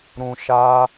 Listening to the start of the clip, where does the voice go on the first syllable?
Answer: low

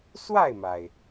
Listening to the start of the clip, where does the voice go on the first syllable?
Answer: falling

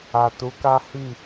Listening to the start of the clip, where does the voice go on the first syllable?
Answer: low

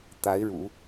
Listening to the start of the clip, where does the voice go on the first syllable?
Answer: rising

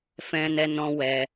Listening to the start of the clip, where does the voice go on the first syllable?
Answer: high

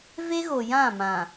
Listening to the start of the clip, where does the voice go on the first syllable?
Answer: high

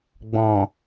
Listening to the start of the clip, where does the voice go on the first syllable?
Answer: low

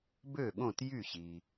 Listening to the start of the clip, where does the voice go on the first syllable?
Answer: falling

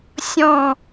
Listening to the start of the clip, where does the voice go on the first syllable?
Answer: falling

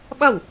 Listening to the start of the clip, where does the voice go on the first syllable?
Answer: falling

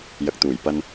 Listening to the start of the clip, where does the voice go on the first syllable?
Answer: low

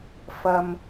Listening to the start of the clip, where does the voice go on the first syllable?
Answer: low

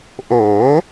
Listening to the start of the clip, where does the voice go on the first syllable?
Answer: rising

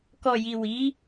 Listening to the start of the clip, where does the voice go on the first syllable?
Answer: low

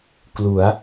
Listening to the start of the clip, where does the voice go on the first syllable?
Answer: rising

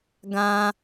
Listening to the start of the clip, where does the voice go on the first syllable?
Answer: high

